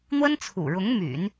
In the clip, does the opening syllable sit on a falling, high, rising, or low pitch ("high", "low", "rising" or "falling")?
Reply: high